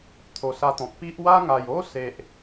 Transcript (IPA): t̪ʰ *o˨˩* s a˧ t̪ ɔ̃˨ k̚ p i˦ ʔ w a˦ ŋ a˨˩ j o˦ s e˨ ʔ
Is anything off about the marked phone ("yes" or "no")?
no